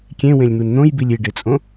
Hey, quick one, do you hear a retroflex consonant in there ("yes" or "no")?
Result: yes